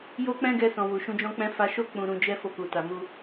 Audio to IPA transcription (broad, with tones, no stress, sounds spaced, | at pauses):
j o˦ k͡p ɛ̃˦ ɡ ɛ˧ s ɔ̃˨ w u˨ ʃ ũ˧ d͡ʒ ɔ̃˦ k͡p ɛ̃˦ f a˧ ʃ o˦ k͡p ũ˧ ɾ ũ˧ d͡ʒ ɛ˦ f o˧ k u˨ t a˨ m u˧